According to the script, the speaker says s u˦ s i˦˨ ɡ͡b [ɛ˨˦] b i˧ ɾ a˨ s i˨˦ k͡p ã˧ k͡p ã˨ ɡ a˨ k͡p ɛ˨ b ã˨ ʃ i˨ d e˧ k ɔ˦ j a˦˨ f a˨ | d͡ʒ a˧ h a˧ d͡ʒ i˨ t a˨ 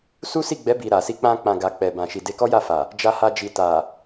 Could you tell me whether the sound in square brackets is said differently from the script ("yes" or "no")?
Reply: no